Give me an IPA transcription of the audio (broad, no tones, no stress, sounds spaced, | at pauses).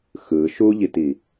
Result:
x ɯ ʃ u ʎ i t i